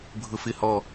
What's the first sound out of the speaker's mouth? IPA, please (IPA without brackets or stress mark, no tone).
bʱ